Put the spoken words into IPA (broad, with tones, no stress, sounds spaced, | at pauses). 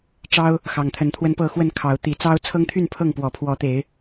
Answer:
ʈ͡ʂ ɑ˦ ʊ̯ | x ɑ˨˩ ŋ t̪ʰ ə˨˦ n t̪ʰ w ə˦ n p ɤ˥˨ x w ə˥˨ n kʰ ɑ˨˦ ʊ̯ t̪ i˨˩ t͡s ɑ˦ ʊ̯ t͡sʰ ɤ˦ ŋ t̪ʰ y˥˨ n pʰ ɤ˥˨ ŋ p w ɔ˨˩ pʰ w ɔ˨˦ t̪ e˨˦ ɪ̯